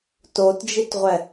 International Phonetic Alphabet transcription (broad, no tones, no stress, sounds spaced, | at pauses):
t o t d͡ʒ i t ʁʷ ɛ